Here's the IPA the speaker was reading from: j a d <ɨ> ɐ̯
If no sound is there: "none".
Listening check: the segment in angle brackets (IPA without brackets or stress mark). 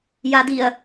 i